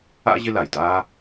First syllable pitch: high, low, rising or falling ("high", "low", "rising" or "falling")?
high